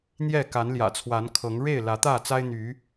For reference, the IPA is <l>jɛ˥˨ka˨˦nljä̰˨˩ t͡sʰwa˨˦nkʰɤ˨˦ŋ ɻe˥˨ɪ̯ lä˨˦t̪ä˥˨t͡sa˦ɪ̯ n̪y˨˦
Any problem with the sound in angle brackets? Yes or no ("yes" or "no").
yes